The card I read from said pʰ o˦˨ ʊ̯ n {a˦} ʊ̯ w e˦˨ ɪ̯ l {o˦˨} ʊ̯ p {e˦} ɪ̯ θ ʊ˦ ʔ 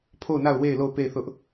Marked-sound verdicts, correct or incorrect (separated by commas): incorrect, correct, incorrect